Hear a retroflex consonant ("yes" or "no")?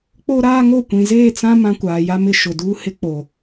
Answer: no